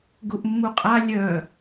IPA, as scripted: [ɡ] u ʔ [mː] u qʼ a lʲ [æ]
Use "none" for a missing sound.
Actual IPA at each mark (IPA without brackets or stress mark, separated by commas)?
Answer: ɡ, mː, œ